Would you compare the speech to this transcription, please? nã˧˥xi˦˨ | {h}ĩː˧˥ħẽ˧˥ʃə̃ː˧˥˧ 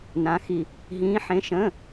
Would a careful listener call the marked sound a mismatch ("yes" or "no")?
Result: yes